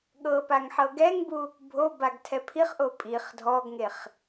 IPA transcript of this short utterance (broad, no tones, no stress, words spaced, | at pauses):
ɠɤ paŋħɤɡɛŋbu | bʱobaɡ tʰɛpʰiχʔo pʼiχ dʱɔɡŋeχ